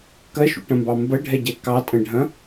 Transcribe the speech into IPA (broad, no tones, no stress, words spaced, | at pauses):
kɐʃṵʈɐ̃mbɑ mbɐɖʱɛɟɛ kɑtʼɐ̃ɖʱɐ̃